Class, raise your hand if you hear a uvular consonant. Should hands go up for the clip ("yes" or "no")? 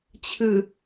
no